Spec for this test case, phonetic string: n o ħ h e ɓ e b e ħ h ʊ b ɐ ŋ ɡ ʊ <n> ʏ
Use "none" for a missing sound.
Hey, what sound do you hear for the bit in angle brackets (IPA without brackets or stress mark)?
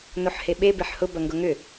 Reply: ŋ